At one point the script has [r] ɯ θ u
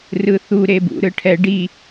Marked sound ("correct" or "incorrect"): correct